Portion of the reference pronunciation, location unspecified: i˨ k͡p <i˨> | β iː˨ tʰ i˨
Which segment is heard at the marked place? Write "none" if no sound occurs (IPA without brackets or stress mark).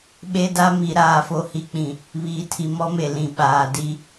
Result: ĩ˨